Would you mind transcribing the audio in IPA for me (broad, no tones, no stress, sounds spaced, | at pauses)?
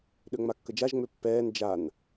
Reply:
ɗ ø ŋ͡m a kː ə d͡ʒ a ʒ ŋ͡m ø pː ɛː n d͡ʒ a n